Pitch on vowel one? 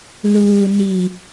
low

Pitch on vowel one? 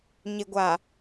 low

